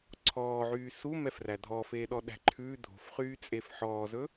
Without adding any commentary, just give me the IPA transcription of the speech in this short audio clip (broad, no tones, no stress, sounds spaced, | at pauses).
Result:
ǀʰ ɔː ʕ yː s u m ɛ f r æ dʱ ɔ f eː ɗ ɔ ɗ æ̤ ǃʰ ʉ dʱ o̤ f χ yː t͡sʼ e f ħ ɔː z ɵ